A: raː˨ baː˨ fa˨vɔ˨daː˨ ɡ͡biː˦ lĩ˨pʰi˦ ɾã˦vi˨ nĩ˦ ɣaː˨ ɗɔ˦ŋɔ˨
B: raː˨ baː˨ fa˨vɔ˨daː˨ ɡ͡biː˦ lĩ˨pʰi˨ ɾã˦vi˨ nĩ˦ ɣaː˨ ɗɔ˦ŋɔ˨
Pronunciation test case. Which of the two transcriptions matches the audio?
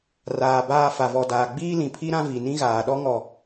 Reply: A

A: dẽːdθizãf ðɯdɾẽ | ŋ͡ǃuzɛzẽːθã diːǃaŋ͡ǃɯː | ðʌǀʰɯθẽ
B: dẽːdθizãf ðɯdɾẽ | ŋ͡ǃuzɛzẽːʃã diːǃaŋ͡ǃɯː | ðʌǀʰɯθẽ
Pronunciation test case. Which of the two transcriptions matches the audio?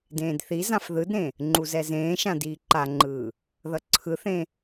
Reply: B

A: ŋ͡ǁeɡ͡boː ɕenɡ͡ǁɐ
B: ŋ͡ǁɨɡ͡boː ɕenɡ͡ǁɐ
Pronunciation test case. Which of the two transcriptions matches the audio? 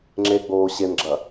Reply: A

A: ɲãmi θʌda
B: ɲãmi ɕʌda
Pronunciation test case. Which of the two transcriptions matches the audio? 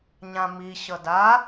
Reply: B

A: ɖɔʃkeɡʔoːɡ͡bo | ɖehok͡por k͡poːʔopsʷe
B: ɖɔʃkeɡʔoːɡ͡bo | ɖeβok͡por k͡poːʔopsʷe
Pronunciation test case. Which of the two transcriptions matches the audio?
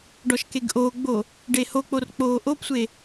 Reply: A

